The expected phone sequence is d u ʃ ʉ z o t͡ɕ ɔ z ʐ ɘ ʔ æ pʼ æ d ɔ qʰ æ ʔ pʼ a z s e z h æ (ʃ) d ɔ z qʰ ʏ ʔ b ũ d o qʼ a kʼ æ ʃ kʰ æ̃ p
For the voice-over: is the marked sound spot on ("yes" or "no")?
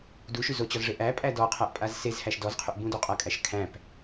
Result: yes